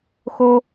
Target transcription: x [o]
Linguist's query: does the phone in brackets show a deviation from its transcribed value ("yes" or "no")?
no